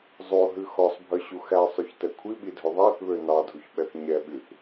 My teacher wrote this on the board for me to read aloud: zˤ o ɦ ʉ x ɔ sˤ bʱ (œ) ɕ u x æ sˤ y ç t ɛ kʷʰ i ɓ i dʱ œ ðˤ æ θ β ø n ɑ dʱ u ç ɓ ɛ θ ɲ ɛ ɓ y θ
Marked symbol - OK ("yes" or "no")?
yes